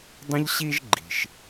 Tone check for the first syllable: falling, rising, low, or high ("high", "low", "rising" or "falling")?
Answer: high